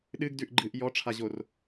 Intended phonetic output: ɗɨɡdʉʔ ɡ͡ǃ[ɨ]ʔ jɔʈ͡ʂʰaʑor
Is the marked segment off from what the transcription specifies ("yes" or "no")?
no